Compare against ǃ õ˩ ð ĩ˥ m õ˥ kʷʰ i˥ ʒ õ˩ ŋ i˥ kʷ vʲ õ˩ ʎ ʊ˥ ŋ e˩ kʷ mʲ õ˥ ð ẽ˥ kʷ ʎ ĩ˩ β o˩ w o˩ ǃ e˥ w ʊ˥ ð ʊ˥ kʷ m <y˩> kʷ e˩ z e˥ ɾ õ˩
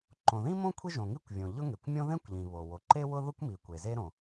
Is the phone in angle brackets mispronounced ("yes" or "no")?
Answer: yes